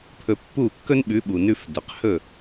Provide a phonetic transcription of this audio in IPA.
pʰ ɵ˧ pː u˥˩ kː ɵ˥ n ɓ ʉ˩˥ ɓ u˩ n ʉ˧ f d œ˩ q h ɵ˥˩

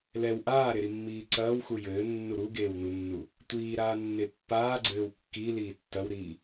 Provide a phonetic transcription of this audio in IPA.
l ɛ w ʔ aː ɾ e ɾ i mː iː ǀ ɐː w x u j ɘː nː u ɾ u ɡ eː w n u nː u | tʷ iː ɾ aː nː e pː aː ɡ͡ǀ ɘː w kː i l iː tː ɐ w ɾ iː

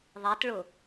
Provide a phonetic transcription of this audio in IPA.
ðˤ ɛ t ɭ ʊ

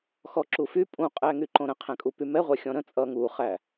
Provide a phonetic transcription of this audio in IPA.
x ɔ ǁ u f y pʼ ũ qʼ æ ŋ y ǃ õ ɾ ə̃ qʰ æ̃ kʼ u p y m ɛ ʁʷ ɛ xʲ ɔ̃ ɾ ə̃ t͡sʼ ʌ ŋ u χ æ

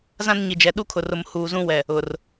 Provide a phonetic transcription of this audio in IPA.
z ã˦ n ɲ i˨ d͡ʒ ɛ˨ ɗ u˦ kʰ ʊ˨ r ʊ˨ m h uː˨ z ũ˦ w ɛ˨ | ʊ˨ r

